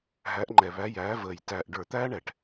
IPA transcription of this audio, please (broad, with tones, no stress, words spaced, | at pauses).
ɦæ˨˦ʔŋ͡ǃɛ˨˩βæ˨˦ jæː˨˦vəː˨˩j tæː˨˩ʔɖə˞˧˩˧ t̪æː˦ɳɛ˨˩ʈ